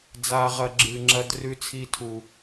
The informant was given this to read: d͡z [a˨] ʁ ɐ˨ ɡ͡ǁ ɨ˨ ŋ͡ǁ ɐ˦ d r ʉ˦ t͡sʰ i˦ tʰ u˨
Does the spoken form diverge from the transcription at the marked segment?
no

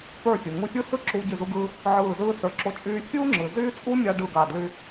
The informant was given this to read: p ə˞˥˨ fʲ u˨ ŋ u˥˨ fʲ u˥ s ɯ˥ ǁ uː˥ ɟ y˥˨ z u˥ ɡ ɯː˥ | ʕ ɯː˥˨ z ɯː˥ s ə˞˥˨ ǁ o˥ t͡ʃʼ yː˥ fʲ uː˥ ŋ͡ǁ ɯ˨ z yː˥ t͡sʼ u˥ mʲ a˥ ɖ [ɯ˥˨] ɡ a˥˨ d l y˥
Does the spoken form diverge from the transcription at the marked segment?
no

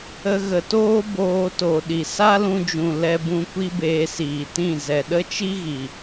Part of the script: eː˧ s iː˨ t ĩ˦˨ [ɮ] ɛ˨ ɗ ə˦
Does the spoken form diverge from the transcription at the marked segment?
yes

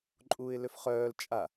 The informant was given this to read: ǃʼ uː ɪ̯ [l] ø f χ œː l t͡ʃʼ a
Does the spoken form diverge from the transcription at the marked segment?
no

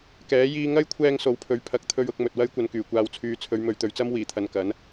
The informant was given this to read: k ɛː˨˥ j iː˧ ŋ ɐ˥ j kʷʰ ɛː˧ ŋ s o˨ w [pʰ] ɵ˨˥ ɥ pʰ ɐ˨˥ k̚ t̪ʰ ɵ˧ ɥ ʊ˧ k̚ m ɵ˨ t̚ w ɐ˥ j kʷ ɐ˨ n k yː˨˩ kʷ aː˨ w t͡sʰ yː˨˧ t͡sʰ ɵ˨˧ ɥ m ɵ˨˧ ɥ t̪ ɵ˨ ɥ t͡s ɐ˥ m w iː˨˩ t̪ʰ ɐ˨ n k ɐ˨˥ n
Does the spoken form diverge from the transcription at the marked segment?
no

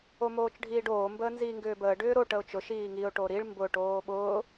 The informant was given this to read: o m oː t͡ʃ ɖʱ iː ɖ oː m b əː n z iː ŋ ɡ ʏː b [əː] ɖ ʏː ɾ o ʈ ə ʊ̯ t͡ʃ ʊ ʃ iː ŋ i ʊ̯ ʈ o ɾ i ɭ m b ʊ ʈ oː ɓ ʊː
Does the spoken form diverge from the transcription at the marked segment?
no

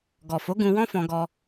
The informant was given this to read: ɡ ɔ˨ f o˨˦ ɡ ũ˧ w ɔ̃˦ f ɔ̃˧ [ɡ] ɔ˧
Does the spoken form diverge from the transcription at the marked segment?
no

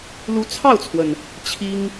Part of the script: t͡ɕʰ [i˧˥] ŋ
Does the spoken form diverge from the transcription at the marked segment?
yes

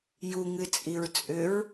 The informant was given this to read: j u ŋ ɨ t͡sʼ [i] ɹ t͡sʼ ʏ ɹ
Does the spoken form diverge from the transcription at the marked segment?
no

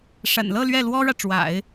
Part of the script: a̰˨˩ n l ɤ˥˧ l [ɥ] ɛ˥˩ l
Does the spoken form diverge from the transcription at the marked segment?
no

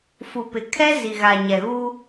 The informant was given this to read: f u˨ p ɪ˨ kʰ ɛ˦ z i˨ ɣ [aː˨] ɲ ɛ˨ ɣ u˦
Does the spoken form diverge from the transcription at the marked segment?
yes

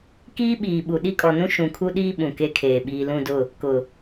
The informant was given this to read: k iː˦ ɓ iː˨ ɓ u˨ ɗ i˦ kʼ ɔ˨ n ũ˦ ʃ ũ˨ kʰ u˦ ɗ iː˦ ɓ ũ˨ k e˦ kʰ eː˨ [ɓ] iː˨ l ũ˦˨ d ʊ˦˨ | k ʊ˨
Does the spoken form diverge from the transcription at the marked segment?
no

